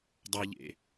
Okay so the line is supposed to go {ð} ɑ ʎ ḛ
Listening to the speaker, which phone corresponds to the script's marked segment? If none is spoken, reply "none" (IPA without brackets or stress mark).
dˤ